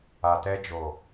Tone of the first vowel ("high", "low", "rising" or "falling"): low